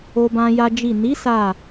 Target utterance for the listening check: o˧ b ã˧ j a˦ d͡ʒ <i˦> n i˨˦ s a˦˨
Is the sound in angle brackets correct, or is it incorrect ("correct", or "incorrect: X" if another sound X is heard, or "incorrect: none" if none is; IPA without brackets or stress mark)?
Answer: incorrect: i˦˨